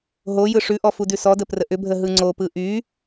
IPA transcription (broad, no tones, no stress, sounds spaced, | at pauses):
ɦ o j ɯ ʂ ʉ ʔ ɔ f u d ʉ s ɔ d ə p r ə ʔ ʏ bʱ ə ɦ ɯ ŋ͡ǀ o p ɯ ʔ y